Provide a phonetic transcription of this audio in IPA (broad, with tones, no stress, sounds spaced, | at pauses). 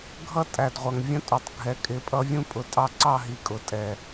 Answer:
ɡʱ ʌ˦ tʼ æ˨ d ʁʷ ʌ˨ ŋ vʲ ə̃˧ tʼ u˨ tˤ ɡʱ ɛ˨ kʼ ɪ˨˦ pʼ ʌ˦ vʲ ũ˧ pʼ ʊ˨ tʼ ɑ˧ ǀ ɑ˦˨ ɦ i˨ kʼ ʊ˨ tʼ ɛ˨